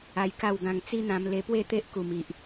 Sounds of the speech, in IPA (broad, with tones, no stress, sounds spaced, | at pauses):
a˧ j k a˥˧ w ɡ ã˧ ŋ t͡s i˦ n̪ ã˧ m l e˧ p w e˥˧ t̪ e˦ ʔ k u˨˩ m i˨ ʔ